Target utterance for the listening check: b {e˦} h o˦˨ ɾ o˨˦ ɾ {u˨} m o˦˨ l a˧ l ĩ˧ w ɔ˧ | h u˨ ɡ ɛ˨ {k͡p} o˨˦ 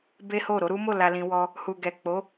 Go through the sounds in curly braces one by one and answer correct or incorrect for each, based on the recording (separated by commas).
correct, incorrect, correct